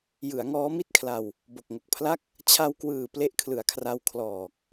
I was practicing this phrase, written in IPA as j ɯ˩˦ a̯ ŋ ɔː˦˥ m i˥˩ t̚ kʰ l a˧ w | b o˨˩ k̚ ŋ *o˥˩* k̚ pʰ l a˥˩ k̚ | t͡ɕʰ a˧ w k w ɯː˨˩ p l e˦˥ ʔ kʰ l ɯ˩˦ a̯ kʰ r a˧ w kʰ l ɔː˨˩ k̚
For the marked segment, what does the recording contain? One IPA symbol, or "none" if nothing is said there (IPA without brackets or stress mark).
o˨˩